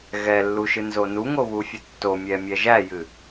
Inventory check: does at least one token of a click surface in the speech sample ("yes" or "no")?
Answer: no